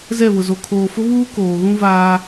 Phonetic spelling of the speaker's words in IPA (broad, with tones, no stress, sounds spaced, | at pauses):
z ɛ˦˨ β ʊ˨ z o˨ kʰ oː˨ f ʊ˦ β uː˦ k oː˨ ɣ ũ˦ v aː˦